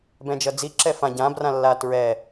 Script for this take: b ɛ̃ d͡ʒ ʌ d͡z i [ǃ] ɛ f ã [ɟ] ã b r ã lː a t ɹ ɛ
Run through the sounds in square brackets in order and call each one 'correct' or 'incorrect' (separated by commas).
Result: incorrect, correct